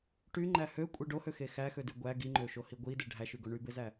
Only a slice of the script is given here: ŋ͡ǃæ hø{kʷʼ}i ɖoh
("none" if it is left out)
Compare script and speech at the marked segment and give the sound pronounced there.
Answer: kʷʼ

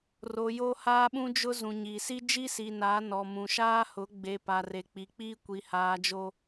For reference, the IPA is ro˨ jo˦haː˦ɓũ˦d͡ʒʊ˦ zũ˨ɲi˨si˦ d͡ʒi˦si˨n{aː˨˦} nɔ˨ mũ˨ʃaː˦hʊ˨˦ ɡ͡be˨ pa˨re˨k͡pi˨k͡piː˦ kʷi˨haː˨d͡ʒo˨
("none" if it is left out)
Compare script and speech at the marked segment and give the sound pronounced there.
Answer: aː˨˦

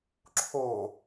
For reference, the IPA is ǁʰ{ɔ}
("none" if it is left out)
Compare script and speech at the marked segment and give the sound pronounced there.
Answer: o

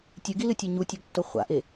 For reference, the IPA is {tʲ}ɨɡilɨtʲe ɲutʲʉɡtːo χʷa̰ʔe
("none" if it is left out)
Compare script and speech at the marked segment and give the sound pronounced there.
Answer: tʲ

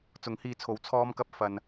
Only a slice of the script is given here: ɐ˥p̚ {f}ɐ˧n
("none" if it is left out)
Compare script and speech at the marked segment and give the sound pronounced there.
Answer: f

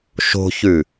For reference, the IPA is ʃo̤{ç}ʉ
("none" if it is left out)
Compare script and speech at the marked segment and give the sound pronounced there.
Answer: ç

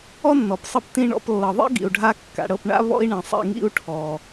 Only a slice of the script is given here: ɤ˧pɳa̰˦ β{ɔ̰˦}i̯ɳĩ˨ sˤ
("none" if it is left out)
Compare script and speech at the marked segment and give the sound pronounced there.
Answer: ɔ̰˦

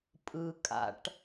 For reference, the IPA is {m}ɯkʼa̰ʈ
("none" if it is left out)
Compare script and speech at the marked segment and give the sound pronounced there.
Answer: pʼ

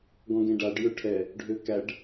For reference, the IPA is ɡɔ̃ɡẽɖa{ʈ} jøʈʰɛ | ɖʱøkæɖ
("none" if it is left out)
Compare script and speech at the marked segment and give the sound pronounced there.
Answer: ɖ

